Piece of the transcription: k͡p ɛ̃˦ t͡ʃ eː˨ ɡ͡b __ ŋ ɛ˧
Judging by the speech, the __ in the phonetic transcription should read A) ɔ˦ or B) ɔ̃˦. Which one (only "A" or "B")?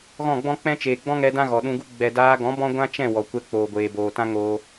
B